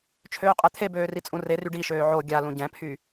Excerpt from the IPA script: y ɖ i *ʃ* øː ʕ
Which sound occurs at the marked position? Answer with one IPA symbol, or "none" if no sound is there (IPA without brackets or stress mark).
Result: ʃ